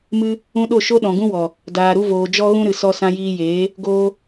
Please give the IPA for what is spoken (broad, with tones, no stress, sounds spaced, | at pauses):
m ɨ˦ | ũ˧ ɗ o˦˨ ʃ o˦ ɗ ɔ̃˨ ɡ ũ˦ w ɔ˨ | d aː˨ ɾ u˧ v oː˨ d͡ʒ ɔ˦ ɣ ũ˦ ɾ ɨ˨ s ɔ˧ s ã˧ j iː˧ j eː˨˦ | ɡ oː˧